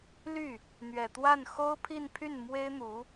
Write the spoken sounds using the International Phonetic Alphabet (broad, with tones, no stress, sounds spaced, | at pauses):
l y˥˩ | n̪ ɥ ɛ˨˩ t̪ w a˥˩ n x o˥ ʊ̯ pʰ i˥˧ n pʰ y˥˩ n m w e˥ ɪ̯ n̪ u˧˥